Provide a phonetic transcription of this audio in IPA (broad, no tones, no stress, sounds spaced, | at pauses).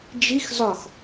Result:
d͡ʒ i x z ɒ x